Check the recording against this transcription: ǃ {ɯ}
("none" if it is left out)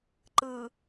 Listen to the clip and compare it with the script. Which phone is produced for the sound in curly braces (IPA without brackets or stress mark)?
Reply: ɯ